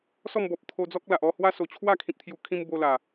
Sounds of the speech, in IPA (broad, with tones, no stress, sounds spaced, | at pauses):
s ɔ˥˧ m b ɔ˨ p̚ t̪ʰ o˧ d͡z ɔ˦ k̚ l a˨ ʔ ɔ˥˧ h w a˦ s o˨˩ t͡ɕʰ w a˥˧ kʰ ĩ˨ p̚ t̪ʰ j u˨˩ kʰ ĩ˧ m b o˧ l a˨˩